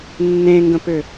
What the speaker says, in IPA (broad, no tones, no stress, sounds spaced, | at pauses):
nː ẽ ŋ ɡ ə̃ p ʏ